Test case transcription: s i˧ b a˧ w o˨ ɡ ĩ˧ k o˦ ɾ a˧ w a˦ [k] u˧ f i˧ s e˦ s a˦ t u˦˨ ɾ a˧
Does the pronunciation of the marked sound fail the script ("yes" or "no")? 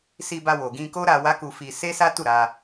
no